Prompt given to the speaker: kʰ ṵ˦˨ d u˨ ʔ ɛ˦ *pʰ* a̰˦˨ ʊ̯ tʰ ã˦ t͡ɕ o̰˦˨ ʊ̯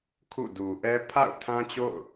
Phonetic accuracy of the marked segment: correct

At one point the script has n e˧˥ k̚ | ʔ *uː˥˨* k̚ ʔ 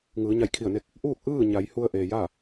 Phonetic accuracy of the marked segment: correct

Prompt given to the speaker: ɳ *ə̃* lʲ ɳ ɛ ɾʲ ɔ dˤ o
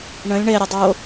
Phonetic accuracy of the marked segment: correct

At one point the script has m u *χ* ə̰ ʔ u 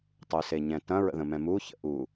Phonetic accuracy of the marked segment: incorrect: ç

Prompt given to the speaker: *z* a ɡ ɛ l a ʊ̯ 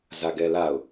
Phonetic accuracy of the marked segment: correct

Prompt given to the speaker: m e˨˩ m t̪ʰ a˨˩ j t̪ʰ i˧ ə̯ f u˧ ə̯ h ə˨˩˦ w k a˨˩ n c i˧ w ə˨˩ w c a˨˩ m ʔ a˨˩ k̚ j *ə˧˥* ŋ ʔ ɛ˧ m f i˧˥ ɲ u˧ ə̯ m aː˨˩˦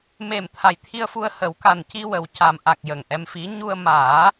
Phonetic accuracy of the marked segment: incorrect: ə˨˩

